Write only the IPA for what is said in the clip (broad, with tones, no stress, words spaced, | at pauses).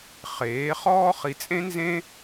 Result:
χeː˨˥χɔː˥ χi˧t͡sʼẽ˥nzẽ˥